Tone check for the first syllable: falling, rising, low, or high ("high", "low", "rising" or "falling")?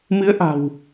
rising